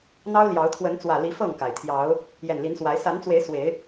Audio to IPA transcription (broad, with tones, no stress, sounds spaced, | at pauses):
n̪ ɑ˦ ʊ̯ l j ɑ˨˦ ʊ̯ t̪ʰ w ə˨˦ n t͡s w ä˨˩ l i˨˦ f ɤ˥˨ ŋ k a˩ ɪ̯ t̪ʰ j ɑ˨˦ ʊ̯ | j ɛ˨˩ n l i˨˦ n s w a˨˦ ɪ̯ s a˨˦ n t͡s w e˨˦ ɪ̯ s w e˨˦ ɪ̯